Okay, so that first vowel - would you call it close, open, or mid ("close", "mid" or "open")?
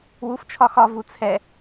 close